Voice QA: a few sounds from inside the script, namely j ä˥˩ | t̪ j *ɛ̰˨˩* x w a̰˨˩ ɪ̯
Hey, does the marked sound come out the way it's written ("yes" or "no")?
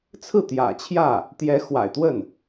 no